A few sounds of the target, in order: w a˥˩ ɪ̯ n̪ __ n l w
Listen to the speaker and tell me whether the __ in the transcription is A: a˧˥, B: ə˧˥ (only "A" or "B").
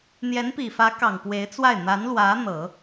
A